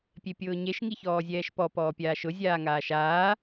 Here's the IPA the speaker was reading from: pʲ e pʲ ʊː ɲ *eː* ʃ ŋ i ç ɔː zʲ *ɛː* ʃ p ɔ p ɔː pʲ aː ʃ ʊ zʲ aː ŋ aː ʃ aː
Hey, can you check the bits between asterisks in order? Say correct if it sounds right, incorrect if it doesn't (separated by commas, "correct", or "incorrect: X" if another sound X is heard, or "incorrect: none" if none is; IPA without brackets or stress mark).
incorrect: e, correct